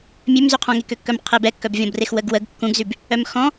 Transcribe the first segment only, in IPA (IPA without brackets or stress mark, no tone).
mʲ